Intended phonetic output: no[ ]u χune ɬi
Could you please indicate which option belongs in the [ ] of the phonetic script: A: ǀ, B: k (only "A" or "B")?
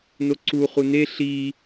A